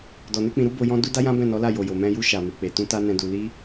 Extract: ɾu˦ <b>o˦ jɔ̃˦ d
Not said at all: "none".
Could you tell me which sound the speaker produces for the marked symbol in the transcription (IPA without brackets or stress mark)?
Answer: b